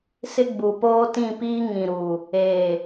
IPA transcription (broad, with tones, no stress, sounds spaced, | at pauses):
s ɪ˦ ɡ͡b u˨ p oː˦ t ĩ˦˨ p iː˦ ŋ ĩ˨ ɾ uː˨ | eː˨